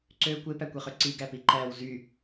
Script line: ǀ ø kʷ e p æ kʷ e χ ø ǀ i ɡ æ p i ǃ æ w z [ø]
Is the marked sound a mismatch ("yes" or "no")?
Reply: yes